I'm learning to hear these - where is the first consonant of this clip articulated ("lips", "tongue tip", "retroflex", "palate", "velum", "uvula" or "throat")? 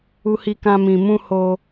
throat